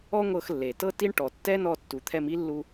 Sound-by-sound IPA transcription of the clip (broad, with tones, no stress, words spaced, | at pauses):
ɔ˥ŋʷɤ˧xlːe˩tɤ˥ ti˥ɳ ʈɔ˩tːɛ˥nɔ˧ tːu˩t̪ʰɛ˧mi˥lːu˧